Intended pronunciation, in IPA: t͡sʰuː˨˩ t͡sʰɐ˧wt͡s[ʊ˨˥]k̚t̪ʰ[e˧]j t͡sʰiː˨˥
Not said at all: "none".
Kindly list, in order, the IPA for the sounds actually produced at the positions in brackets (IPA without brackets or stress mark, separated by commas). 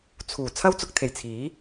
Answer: ʊ˨, e˨˩